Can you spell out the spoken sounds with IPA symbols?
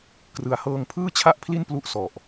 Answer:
k r ɯ˨˩ a̯ h ɤː˧ ŋ pʰ ɯː˥˩ t͡ɕʰ a˥˩ ʔ pʰ l i˥˩ n p l u˦˥ ʔ s ɔ˨˩ ʔ

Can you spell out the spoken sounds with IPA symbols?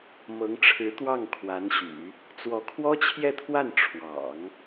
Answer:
m ɤ˧˥ ŋ ʈ͡ʂʰ ɻ̩˧˥ t̪ w ɑ˥˩ ŋ kʰ w a˧˥ n ɕ y̰˨˩˦ | t͡s w ɔ˧˥ kʰ w ɔ˥ t͡ɕʰ j ɛ˥˧ t̪ʰ w a˥˩ n ʈ͡ʂʰ w ɑ̰˨˩˦ ŋ

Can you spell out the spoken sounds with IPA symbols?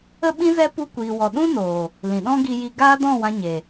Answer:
ə˦ ɓ ĩ˦ z ɛ˦ p u˧ kʷ iː˨ w ɔ˨ ɗ ũ˦ n oː˨ | l ĩ˨ ɗ ɔ̃˦ ɡ i˧ j i˧ ɡ aː˦ d ɔ̃˦˨ w ã˧ ɲ e˨

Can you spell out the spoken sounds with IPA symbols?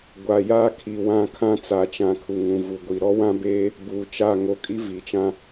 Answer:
ɡʷ a˨ j aː˦ kʰ i˨ w ã˦˨ kʰ ã˦ t͡s a˨ t͡ʃ ã˨ kʰ u˨ ŋ ũ˨ v u˨ ɡʷ i˨ ɾ ɔ˦ w ã˦ b eː˦ | b uː˨ t͡ʃ a˦˨ ŋ o˨ kʼ i˦ v i˨ t͡ʃ ã˦

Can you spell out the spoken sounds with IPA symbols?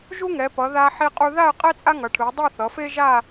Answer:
ʒ u˥ ŋ ɛ˩˧ p ʌ˩˧ ð a˧ ħ i˧ qʼ u˧ ð a˥˧ ə̯ qʼ ɛ˥ t͡sʼ a˥ ŋ ʌ˩˧ ʈʰ ɯ˩˧ ə̯ dˤ o˥˧ θ ʌ˩˧ f e˥ ʒ a˥˧

